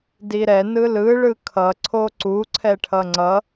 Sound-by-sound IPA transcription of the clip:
d i ɾ ɛ n ɯ l ɯ ɭ ɯ kʰ ʌ ǀʰ o ǀ u ǀʰ ɛ ʈʰ ʌ ŋ͡ǀ ʌ

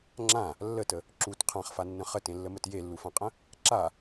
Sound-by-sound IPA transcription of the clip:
ŋ͡ǁ ã | lː ə t ə | ǁ u t qʰ ã χ f a nː ə̃ χ ə t ẽ lː ə m ə t j e lː u f ã qʼ ə̃ | ǁ a

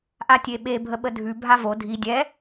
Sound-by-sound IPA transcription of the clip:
ʔ a tʲ e ɓ e bʱ ə ɓ ə dʱ ʉ bʱ a v o dʱ i dʲ ɛ

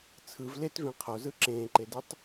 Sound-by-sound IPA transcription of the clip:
t͡sʰ ɯ v l e t v ẽ qʰ o z ɯ ǁ ẽː ǃ e d ɯ tˤ

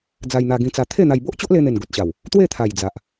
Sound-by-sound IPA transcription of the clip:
d͡z a˧ j n̪ a˧ ɡ ĩ˧ t͡s a˧ t̪ʰ e˥˧ n̪ a˧ j b o˦ ʔ t͡ɕ o˦ ʔ l e˧ n̪ e˨˩ n ɡ o˨ t̚ ɕ a˨˩ w | t̪ w e˥˧ t̪ʰ a˨˩ j d͡z a˨ ʔ

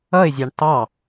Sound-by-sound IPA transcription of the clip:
ʌ ɪ̯ zʲ ɑ ɳ t ɑ

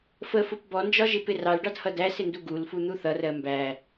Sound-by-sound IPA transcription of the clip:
f ə f ʊ p b ɔ n d͡ʒ ɒ ʒ ɪ p ɪ r ɑ l ɖ ɑ d h ʌ d æ s ɪ n d u ɡ u l f u n̪ u θ ʌ r ɜ m b æ

